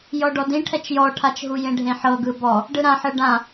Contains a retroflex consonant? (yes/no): yes